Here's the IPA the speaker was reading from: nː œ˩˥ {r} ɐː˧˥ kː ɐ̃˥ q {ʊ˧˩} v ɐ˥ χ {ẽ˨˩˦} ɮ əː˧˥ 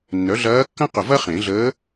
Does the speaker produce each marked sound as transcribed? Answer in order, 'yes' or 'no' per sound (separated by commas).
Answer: no, yes, yes